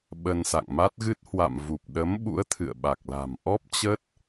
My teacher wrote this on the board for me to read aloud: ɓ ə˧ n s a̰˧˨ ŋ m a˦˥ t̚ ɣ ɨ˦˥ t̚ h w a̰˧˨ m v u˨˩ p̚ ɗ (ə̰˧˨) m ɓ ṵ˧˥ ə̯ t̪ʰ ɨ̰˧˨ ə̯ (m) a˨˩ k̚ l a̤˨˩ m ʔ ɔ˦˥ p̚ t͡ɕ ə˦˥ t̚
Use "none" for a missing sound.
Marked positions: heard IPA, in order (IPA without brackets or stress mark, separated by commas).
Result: ə˨˦, ɓ